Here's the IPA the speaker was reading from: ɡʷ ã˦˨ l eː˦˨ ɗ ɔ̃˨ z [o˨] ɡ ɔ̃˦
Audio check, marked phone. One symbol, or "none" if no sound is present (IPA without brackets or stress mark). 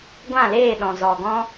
ɔ˨